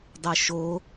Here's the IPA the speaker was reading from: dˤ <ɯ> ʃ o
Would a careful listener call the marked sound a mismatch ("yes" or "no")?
no